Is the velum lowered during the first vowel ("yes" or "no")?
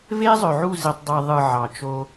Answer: no